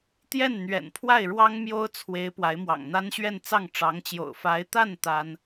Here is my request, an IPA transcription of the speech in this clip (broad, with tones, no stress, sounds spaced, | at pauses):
t̪ j ɛ˥˩ n n̪ ɥ ɛ̰˨˩ n pʰ w a˥˩ ɪ̯ ɻ w ɑ˥ ŋ m j o˥ ʊ̯ t͡sʰ w e˧˥ ɪ̯ p w a˧˥ ɪ̯ m w ɑ̰˨˩ ŋ n̪ a˥ n ɕ ɥ ɛ˥˧ n t͡s ɑ˥˩ ŋ ʈ͡ʂ ɑ˧˥ ŋ t͡ɕ j o̰˨˩ ʊ̯ f a˧˥ ɪ̯ t̪ a˥˩ n t̪ a˥ n